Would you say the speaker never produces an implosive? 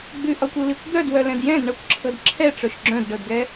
yes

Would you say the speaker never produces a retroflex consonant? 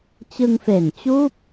yes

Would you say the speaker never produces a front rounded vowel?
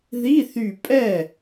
no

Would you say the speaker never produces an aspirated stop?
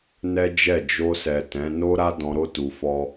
yes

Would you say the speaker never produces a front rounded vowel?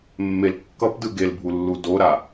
yes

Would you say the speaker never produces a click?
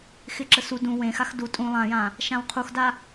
no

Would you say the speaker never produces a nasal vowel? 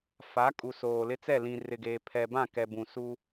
no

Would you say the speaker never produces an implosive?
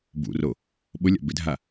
no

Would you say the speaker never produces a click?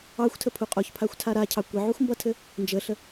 yes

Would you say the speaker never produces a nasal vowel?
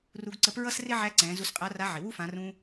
no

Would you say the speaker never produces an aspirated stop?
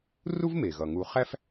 yes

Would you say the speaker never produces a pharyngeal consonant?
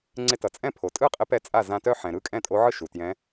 no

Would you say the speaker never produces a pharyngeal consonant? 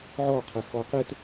no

